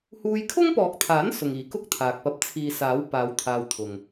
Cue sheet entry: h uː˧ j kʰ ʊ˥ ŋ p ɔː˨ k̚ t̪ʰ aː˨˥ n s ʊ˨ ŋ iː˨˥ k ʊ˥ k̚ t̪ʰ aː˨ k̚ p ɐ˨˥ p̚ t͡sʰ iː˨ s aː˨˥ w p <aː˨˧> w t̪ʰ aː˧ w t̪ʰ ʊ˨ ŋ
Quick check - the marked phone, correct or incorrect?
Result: correct